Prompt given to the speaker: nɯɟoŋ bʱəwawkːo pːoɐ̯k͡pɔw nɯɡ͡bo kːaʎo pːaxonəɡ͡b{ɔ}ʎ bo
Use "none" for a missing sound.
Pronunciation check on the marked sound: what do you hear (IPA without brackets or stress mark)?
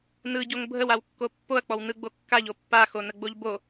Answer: o